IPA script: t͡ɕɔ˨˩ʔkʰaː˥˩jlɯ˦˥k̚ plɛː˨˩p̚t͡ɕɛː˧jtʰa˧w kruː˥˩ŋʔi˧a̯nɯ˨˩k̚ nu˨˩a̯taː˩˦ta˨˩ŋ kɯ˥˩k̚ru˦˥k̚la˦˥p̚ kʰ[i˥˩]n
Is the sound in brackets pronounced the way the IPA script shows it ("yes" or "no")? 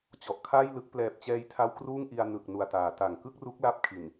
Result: no